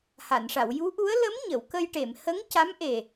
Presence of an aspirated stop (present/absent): absent